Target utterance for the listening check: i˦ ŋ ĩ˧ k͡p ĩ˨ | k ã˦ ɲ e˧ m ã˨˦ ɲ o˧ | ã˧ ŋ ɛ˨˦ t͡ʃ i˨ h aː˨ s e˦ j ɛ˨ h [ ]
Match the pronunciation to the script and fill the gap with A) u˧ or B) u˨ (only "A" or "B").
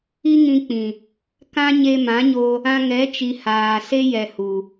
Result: B